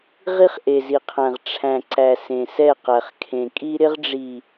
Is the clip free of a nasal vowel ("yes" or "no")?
no